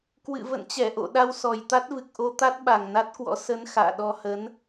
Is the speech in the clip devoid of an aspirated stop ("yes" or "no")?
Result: yes